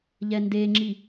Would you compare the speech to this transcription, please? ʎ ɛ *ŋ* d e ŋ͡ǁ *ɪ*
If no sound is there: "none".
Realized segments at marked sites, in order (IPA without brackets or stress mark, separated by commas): n, i